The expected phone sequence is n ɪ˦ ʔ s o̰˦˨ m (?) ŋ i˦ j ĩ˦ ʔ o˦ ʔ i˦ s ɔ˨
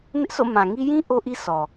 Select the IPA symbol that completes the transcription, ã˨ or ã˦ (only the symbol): ã˨